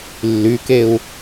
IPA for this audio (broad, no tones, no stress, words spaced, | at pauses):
lːykeu̯